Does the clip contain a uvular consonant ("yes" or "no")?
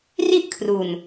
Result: no